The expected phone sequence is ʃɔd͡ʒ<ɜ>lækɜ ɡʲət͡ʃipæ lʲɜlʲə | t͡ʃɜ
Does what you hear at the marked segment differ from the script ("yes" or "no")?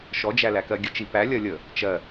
yes